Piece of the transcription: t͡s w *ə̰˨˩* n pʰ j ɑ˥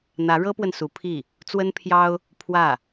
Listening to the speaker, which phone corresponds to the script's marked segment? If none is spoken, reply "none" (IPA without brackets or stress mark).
ə˥